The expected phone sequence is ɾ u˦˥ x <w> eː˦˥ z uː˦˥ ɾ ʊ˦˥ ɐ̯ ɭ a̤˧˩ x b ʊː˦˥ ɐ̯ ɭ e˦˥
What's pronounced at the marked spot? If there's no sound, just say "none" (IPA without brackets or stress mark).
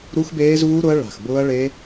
b